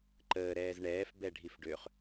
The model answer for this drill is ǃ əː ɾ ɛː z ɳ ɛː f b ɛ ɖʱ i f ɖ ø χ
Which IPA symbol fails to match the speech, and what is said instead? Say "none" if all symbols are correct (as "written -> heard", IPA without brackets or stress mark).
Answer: none